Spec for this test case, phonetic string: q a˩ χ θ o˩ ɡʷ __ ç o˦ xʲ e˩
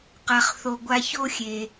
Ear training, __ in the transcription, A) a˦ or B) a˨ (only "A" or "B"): B